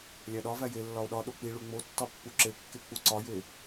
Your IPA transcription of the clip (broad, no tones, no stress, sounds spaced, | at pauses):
lʲ æ ɗ ɒ v æ j e lː ɒ o̯ ɗ ɒ ɗ o k͡p i ɭ u ŋ͡m o tː ɒ pː u ǁ e kː e k͡p u ǀ ɒ j e